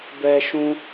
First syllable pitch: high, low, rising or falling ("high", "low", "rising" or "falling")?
high